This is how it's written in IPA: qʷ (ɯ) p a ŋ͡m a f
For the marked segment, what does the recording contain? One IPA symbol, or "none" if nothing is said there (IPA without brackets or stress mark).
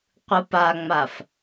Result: ɯ